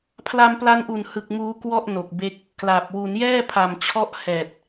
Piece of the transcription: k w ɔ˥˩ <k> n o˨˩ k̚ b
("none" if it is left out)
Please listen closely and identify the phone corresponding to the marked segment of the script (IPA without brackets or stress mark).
ʔ